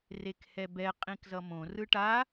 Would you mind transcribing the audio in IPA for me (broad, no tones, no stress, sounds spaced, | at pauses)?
r e k h ɛ b ɛ qʼ ĩ k z ʌ m õ r ɯ ʈ a